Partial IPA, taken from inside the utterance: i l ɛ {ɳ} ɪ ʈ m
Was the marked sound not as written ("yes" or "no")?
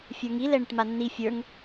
no